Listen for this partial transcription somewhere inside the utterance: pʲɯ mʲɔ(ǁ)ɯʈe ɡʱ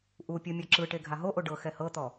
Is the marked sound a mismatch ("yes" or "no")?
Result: no